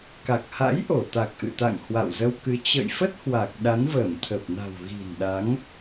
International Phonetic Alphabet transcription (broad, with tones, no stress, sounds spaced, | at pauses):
k a˨˩ k̚ h a̰˧˥ j ʔ o˧˩ t̪ a˨˩ k̚ ʔ ɨ̰˧˨ t̪ a̰˧˨ ŋ h w a̰˧˨ w z ə˧ w k ɨ˨˦ t͡ɕ ə̰˧˨ j f ə˦˥ t̚ h w a˨˩ k̚ ɗ a˨˦ n v əː˧˩ m t̪ʰ əː˨˩ p̚ n a̤˨˩ w ɣ i̤˨˩ n ɗ a˨˦ ŋ